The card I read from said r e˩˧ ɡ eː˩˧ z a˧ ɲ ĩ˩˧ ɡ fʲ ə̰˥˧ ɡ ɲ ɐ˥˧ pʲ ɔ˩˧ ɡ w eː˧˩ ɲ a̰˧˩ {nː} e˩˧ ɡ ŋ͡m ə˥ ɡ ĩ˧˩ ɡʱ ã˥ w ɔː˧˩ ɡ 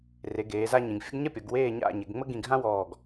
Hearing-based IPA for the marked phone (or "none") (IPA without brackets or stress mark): ɲ